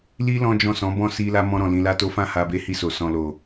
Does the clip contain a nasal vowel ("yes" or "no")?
yes